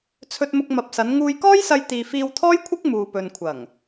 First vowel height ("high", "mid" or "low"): mid